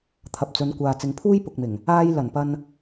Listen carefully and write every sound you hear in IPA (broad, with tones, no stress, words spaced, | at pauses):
t̪ʰɐ˨p̚t͡sɵ˨˧nkʷaː˨ t͡sɪ˨˧ŋpʰuː˥j pʊ˨k̚mɪ˨˩ŋ | aː˧j lɐ˨˩npɐ˧n